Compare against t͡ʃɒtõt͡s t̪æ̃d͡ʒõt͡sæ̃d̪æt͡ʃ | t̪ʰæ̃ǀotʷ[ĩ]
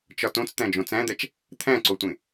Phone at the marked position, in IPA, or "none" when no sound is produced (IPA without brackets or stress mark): ẽ